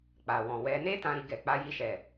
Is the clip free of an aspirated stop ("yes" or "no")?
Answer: yes